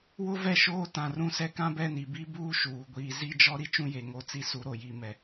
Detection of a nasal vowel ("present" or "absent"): present